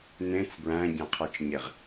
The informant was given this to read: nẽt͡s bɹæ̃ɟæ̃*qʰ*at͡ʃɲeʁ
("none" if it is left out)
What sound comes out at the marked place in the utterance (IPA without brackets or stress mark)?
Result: qʰ